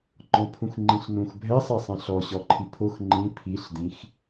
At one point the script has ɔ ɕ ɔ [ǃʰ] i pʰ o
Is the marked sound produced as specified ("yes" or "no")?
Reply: yes